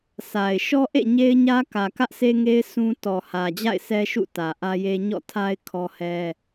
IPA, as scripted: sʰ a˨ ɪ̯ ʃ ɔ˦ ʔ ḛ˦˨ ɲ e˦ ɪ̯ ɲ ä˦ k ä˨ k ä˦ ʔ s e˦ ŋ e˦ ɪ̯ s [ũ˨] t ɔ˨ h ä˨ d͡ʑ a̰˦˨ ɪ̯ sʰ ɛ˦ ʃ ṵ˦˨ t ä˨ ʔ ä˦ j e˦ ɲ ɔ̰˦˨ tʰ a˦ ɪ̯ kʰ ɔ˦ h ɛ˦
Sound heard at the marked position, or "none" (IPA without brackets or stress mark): ũ˦